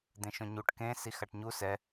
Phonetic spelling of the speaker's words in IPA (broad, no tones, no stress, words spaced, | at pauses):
d̪ẽʃõɲuʈ kẽ sixaʈɲu sɛ